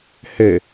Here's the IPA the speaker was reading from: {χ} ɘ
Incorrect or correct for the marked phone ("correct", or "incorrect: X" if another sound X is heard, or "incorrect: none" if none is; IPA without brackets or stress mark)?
incorrect: h